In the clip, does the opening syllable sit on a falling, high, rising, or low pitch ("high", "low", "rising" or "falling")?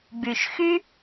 low